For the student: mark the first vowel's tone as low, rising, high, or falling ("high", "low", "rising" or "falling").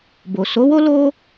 low